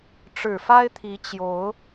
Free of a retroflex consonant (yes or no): no